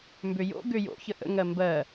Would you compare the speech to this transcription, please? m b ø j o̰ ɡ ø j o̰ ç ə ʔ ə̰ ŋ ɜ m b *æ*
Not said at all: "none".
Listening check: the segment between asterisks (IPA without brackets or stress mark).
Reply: ɜ